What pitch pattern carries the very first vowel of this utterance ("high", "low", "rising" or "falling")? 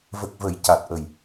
low